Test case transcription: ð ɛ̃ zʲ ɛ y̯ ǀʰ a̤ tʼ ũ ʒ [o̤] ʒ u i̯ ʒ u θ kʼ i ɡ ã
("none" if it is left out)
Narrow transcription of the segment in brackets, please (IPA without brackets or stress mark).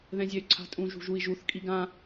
ṳ